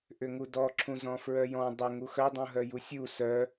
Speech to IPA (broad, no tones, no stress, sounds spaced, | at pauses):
ʔ ʏ ŋ u d ɔ ǁʰ ũ z ɔ̃ f ɹ œ j ɔ̃ dˤ ə ŋ u x œ dˤ ũ ɦ œ j u sʲ u s œ